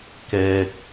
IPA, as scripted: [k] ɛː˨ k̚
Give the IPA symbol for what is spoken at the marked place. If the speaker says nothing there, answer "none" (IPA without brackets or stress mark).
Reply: k